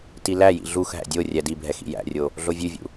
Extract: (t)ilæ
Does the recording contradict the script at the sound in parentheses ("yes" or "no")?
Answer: no